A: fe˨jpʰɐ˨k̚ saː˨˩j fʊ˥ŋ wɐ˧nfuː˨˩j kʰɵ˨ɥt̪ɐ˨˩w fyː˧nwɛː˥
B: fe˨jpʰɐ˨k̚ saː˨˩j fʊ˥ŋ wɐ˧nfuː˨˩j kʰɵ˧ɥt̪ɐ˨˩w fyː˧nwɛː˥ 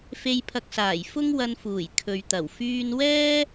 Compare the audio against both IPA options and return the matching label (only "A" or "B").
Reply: A